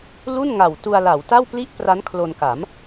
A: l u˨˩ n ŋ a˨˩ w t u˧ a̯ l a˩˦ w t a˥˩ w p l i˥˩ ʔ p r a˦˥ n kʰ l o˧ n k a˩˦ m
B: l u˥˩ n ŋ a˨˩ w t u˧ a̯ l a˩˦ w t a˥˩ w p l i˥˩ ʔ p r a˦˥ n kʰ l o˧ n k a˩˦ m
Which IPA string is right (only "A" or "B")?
B